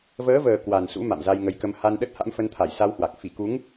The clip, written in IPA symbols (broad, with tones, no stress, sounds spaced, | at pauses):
v əː˨˦ v əː˨˩ k w a˨˩ n s ṵ˧˥ m a̰˧˨ m z a˧ j ŋ ə˨˦ j k ə˧ m h a˧ n ɗ ə˦˥ t̚ h a̰˧˥ m f ə˧ n t̪ʰ a˧˩ j s a˧ w h w a˨˩ k̚ f i˧˩ k u˨˦ ŋ